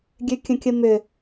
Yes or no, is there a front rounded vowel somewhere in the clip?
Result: yes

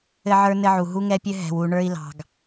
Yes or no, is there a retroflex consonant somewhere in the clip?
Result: yes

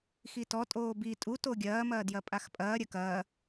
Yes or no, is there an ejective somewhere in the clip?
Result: yes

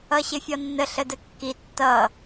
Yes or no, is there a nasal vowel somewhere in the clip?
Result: no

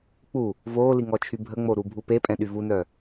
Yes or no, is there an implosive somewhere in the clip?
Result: yes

